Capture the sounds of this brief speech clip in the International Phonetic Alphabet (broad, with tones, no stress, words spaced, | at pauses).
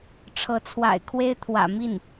ʈ͡ʂʰɤ˧˥t͡sʰwa̰˨˩ɪ̯kʰwe˥ɪ̯ t̪ʰwä̰˨˩mi˥˩n